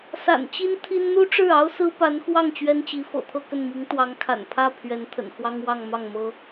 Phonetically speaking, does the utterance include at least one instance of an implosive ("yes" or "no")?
no